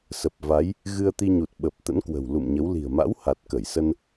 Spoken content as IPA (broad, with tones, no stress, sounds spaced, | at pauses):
s ə˨˩ p̚ v a˨˦ j | ɣ ɨ˧ ə̯ t̪ i˧ ɲ u˨˩ t̚ ɓ ə˨˩ p̚ t̪ ə̰˧˥ n k w ə̤˨˩ w l ṵ˧˨ m ɲ ə˨˦ w l i̤˨˩ ə̯ m a̰˧˥ w h a˨˩ t̚ k ə˧˩ j s ə˧ n